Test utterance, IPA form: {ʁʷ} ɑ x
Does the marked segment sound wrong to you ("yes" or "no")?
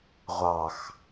no